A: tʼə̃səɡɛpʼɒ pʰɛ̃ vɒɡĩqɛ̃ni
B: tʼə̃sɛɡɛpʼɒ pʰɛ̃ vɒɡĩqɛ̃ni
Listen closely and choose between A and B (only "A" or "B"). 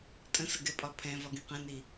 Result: A